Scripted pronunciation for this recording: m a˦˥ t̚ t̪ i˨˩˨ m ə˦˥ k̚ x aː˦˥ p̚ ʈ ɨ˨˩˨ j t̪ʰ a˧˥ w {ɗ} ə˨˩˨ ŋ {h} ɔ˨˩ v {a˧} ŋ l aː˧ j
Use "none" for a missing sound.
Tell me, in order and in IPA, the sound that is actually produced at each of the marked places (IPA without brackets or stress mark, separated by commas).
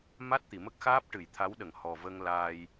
ɗ, h, ə˧